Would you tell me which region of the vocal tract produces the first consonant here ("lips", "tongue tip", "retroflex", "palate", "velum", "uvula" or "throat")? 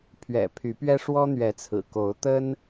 lips